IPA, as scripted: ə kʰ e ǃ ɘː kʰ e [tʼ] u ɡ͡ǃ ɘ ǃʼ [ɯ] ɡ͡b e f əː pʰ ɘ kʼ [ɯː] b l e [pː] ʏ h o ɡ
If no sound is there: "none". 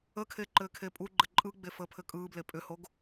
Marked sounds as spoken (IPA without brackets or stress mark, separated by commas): pʼ, ɯ, ɯː, pʼ